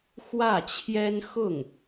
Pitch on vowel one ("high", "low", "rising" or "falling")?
falling